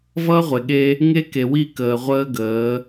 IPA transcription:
v ʌː˦ ʁʷ e˨ ɠ e˦ | ŋ e˦ k e˨ w i˦˨ k əː˨ ʁʷ əː˦ ɡ əː˨˦

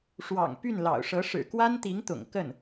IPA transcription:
ʂ w ɑ̰˨˩ ŋ p y˥˩ n l ɑ̰˨˩ ʊ̯ ʂ ɤ˧˥ ʂ ɻ̩˨˩ k w a˥ n t̪ i˧˥ ŋ t̪ ʊ̰˨˩ ŋ k ə˥˩ n

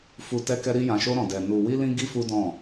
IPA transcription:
f u˧ t ɛ˦ k ɛ˦ ɾ i˦ j ã˧ ʃ o˦ ɾ ɔ̃˧ d ɛ˧ n u˧ w i˦ l ĩ˦ ɡ i˦ f u˦ d ɔ̃˦˨

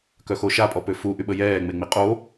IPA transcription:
k œ x o ʃ a pʼ ɔ p ø f u ʔ y ɓ ə j ɛː ŋ͡m e ŋ͡m i qʼ o

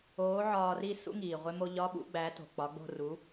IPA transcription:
oː˨˥ ʕ ɒː˧ r i˥˧ s ṵ˧˥˧ ŋ iː˩ ʁʷ e˧ m o˧ ʎ ɒ˧˥˧ ɓ ṵ˧˥˧ ɡ͡b æ˨˥ t o̤˩ k͡p ɒ˨˥ ɡ͡b o̤˥˧ r u˨˥

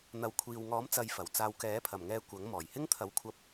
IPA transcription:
n̪ ɐ˨˥ w kʷʰ iː˨ w ŋ ɔː˨˥ m t͡s ɐ˨˧ j f ɐ˨˩ w t͡s aː˧ w k ɛː˨˥ pʰ ɐ˨˩ m ŋ ɛː˧ kʷ ɐ˨˥ ŋ m ɔː˨˩ j h ɪ˥ ŋ t̪ʰ ɐ˨˧ w kʷʰ ɐ˧ p̚

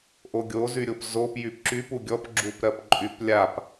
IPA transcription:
ʔ o ɡʲ o z y ɾʲ o p z o p j y p ǁ y p u ɡʲ ɔ p ɡ͡ǁ u p ɾ ɜ p ǃʼ y p lʲ a p

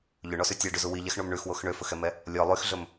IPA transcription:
ʎ ɵ ɳ ɔ s y tʲ æ ɖ ʉ z u w i ʎ ɛ x ɳ o m ɳ ʉ x w o x ɳ ø f ɵ x ɛ m ɛ | lʲ ɔ lˠ y x ɮ ɵ m

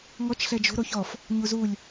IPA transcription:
ŋ ɔ t͡ʃ ɬ ɛ d͡ʒ o̤ ɾ o ç ɔ f | ɲ u z u lʲ

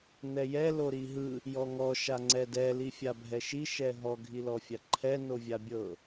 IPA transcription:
n ɛ j ɛ l o ɾ i ɦ ɯ | j ɔ ŋ ɔ ʃ a ŋ͡ǀ ɛ d ɛ l i fʲ a bʱ ɛ ʃ i ʃ ɛ ɦ ɔ ɡʱ i l ɔ fʲ a ǃʰ ɛ n o vʲ a bʲ ɤ

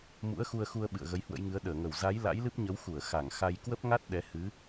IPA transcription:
m ṵ˧˥ ə̯ x u˧ ə̯ x u˧ ə̯ ɓ ɨ̰˧˨ ə̯ ɣ ə˨˦ j h w ə̰˧˥ j ŋ ɨ˨˦ ə̯ ɗ əː˧˩ ŋ ə˧˩ w z a˨˦ j l a̰˧˥ j l ɨ˦˥ p̚ ɲ ə˨˦ w x u˧˩ ə̯ x a˧˩ ŋ x a˧ j k w ə˦˥ p̚ ŋ a˦˥ t̚ ɗ ɛ˨˦ h ɨ˨˦

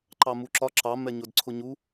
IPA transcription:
ǃ ɑ m u ǁ ɒ ǁ ɑ m ɛ ɲ ʊ d ǀʰ ʊ ɲ u

